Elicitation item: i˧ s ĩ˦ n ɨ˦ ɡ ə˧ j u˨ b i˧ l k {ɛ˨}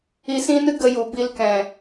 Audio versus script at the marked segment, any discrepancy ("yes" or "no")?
yes